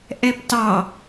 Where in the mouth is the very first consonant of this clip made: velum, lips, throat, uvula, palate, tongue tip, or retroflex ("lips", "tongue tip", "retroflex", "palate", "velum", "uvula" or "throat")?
throat